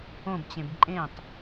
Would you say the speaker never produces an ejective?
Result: no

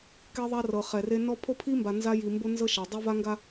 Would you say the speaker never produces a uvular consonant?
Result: no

